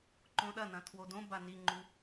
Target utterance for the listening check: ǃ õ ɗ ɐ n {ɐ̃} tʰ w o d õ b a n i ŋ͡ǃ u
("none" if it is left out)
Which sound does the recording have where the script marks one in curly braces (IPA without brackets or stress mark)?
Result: ɐ̃